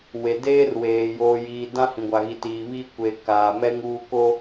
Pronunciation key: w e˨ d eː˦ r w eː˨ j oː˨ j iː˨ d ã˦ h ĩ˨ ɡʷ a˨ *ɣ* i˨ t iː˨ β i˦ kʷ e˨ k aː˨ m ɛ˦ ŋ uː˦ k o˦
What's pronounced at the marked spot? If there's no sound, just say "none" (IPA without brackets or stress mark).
ɣ